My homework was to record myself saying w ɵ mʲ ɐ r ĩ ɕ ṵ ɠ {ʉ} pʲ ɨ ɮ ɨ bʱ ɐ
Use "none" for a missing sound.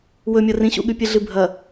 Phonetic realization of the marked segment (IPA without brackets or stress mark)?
ʉ